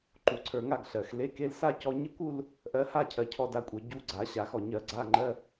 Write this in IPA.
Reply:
ǃu˧ǀʰə˞˧ŋa˥˧ɡ ɬɜ˩x le˧˥˧ke˧˥˧l sa˥˧cɔ˧ɲe˥˧kʷu˥˧l | ʔɜ˧ha˥˧ cʰɜ˧cʰɔ˥˧da˥˧kʷʼə˞˧ ɟu˧˥˧ɡ͡ǀa˨˩˦ɕa˨˩˦x ɔ˩ɲɜ˨˩˦ ɡ͡ǀa˧˥˧ŋ͡ǃɜ˧˥˧

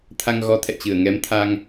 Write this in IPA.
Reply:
t̪ʰa˧ŋɣɔ˨˦t̪ʰɛ̰˧˨t͡ɕɨ˧˩ə̯ ŋɛ˨˦mt̪ʰa˧ŋ

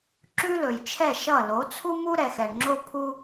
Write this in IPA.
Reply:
ǁʉ˦lɵ˨jt͡ʃʰɛ˦˨ ʃʌ˦˨ lo˨˦t͡sʰu˦mu˦ ɾɛ˨xɛ˨ɳŋ͡ǁo˦ pʰu˦

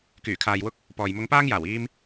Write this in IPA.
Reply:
kyː˨˩kʰaː˨jwʊ˧k̚ | pɔː˨jmʊ˧ŋpaː˥ŋjaː˨˩w iː˧m

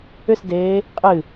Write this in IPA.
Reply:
ʏsdeː | qʼɨ

